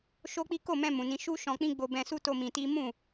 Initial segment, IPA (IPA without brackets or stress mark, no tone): ʃ